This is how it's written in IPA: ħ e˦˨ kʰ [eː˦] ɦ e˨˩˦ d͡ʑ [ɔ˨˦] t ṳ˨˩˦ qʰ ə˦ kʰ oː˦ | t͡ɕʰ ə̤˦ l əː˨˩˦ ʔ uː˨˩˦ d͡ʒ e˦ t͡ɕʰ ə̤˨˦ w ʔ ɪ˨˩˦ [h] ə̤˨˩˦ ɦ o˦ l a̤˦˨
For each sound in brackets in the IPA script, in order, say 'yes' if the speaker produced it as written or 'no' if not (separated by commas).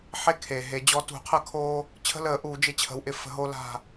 no, yes, no